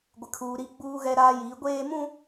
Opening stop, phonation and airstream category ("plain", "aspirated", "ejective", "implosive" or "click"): plain